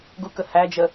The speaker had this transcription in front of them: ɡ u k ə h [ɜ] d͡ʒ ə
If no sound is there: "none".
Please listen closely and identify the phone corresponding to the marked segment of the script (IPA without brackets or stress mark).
æ